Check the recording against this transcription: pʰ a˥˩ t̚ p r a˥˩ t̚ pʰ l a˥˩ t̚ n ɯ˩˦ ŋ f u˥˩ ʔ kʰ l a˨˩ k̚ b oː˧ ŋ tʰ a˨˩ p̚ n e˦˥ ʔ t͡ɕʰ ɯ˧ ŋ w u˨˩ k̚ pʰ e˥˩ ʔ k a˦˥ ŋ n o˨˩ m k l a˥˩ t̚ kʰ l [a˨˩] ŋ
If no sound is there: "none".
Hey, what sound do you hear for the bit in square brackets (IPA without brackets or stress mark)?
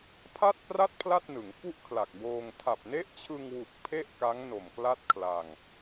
a˧